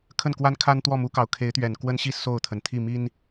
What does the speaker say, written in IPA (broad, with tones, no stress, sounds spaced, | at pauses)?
kʰ ə˥˩ n k w a˥ n kʰ a˥ n t̪ w ɔ˥˩ m u˧˥ k ɑ˨˩ ʊ̯ kʰ e˧˥ ɪ̯ t̪ ɥ ɛ˨˩ n k w ə˥ n ɕ i˥˧ s o˥˩ ʊ̯ t̪ʰ ə˩ n t̪ʰ i˥˩ m i˥ n